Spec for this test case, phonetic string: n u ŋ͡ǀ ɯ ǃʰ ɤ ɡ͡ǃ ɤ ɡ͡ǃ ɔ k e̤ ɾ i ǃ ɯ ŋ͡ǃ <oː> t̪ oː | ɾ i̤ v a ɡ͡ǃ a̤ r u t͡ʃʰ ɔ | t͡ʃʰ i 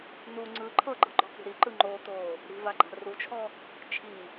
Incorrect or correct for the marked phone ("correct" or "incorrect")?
correct